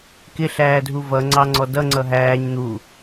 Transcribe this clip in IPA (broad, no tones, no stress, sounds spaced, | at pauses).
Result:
k ɪ ɬ æː dʱ u v ʌ ŋ͡ǀ ɑ ŋ͡ǀ ɔ d ʌ ŋ͡ǀ ʌ ɦ æː ɲ n̪ u